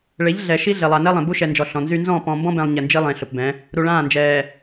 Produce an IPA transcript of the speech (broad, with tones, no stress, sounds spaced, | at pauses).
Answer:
ɭ e˨˦ ʎ ɮ ɛ˨ ʃ i˦ ɮ e˨ lˠ a˨ n ɛ˦ lˠ ẽ˨ b u˦ ʃ ɛ˨ n d͡ʒ ɔ˨ ɬ ɔ̃˨ n z y˦ n z ɔ̃˦˨ p ɔ̃˨ m b ɔ̃˦ b ɛ̃˨ lˠ ɲ ɛ˨ n d͡ʒ i˦ lˠ ẽ˨ ɬ ʊ˨ p b ɛ̃˨˦ | ɾ u˨ ɭ ãː˦˨ n d͡ʒ ɛː˨